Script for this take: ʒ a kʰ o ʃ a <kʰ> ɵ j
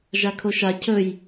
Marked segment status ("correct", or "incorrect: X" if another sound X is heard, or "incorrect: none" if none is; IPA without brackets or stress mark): incorrect: cʰ